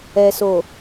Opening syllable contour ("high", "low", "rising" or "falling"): low